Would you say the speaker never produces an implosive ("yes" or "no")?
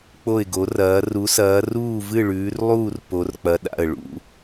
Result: no